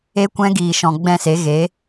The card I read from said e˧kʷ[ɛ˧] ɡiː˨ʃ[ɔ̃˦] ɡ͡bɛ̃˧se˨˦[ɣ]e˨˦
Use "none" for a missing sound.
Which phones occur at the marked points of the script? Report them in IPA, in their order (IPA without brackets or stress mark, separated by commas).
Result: ɛ̃˧, ɔ̃˨, ɣ